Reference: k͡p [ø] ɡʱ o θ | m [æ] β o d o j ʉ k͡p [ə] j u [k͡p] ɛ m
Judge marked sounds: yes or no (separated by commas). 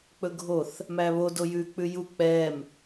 no, yes, no, yes